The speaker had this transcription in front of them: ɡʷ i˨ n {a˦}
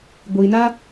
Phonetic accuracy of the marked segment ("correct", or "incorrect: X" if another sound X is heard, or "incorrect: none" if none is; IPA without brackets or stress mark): correct